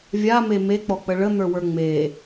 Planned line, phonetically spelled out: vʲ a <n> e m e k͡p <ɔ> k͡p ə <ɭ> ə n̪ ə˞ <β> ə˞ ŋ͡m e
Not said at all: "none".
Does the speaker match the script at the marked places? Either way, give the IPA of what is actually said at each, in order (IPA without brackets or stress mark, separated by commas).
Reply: m, ɔ, ɭ, w